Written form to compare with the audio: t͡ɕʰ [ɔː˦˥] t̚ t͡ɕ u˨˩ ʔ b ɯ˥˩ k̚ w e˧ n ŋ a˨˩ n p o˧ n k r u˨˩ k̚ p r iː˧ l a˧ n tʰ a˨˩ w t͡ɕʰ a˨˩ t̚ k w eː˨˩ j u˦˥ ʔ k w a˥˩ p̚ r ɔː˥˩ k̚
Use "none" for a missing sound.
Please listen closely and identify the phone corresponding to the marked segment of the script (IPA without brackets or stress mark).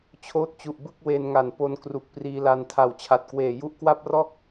oː˦˥